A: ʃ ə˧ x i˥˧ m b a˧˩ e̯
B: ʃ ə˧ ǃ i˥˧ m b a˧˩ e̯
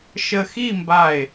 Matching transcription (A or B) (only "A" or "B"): A